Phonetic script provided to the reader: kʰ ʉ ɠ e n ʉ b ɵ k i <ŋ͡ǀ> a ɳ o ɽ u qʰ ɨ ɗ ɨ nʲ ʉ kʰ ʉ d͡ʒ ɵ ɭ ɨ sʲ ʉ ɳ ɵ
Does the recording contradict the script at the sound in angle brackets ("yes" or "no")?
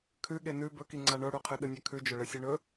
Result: no